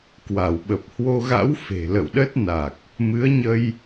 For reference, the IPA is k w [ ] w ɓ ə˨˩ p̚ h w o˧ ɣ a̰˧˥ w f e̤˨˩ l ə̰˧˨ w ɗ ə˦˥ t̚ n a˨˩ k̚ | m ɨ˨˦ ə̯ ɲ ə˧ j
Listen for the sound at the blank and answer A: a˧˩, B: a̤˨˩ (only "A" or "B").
A